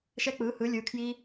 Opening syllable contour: high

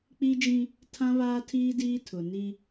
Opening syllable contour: high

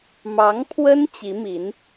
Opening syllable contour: rising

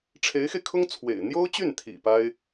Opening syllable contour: rising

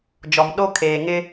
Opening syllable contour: low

